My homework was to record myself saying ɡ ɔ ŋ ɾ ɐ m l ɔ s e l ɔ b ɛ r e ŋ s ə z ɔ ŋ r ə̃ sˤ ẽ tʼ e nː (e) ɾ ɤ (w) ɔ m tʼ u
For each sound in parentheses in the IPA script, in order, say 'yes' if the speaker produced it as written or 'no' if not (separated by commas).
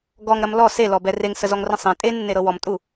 yes, yes